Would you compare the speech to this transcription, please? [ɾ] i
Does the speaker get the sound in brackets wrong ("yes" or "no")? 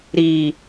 no